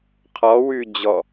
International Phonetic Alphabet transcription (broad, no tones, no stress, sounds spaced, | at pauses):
qʰ ɔ w ʉ d͡ʑ ɔ